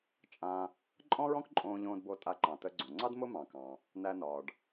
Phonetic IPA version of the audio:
t͡ʃʼ ã˧ | ǃʼ ɔ̃˥ ɹ ɔ̃˥ k ǃʼ õː˧ ʎ õː˧ d b o˧ tʼ a˧ ǃ ɑ̃˩ t ə˧ ɡ͡ǀ õ˩ ŋ͡ǀ ɑ˥ d m ʊ˥ m ɑ̃˩ k ɑ̃˩ | n æ˧ n ɒː˩ ɖ

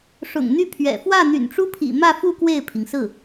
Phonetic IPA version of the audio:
ʂ ʊ̰˨˩ ŋ n̪ y˥˩ pʰ ɥ ɛ̰˨˩ f w ä˥˩ n̪ y̰˨˩ n ʈ͡ʂ u˥ pʰ ḭ˨˩ m ä˥˧ f u˥˧ k w e˥˩ ɪ̯ pʰ i˩ ŋ s ɹ̩˥˩

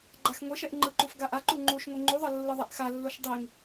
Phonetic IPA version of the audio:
ɡ͡ǃ a x ŋʷ ɛ ʃ ɛ ʔ ŋ͡ǃ ɯ ǃ u f ɡ a ʔ a ǃ u ŋ͡ǃ u ʃ ŋʷ i ŋ͡ǃ u ðˤ ʌ lː ɯ ðˤ ɛ ʔ x a lː o ʃ dˤ i ŋ

